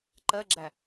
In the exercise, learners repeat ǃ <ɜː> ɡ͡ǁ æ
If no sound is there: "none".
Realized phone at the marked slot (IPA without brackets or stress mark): ɜ